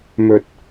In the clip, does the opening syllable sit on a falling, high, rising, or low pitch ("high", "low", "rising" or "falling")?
low